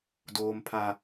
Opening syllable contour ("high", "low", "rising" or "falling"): low